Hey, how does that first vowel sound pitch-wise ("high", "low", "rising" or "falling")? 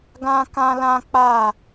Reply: high